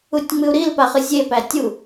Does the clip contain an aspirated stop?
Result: no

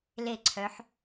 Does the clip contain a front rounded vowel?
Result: yes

